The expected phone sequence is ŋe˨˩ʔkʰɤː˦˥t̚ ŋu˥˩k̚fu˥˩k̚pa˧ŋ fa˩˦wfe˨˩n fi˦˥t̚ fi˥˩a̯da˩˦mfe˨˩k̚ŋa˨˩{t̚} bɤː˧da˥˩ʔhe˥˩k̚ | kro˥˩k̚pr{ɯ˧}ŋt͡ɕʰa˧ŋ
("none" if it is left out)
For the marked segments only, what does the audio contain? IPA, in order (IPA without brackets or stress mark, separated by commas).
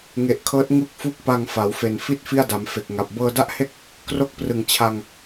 p̚, ɯ˨˩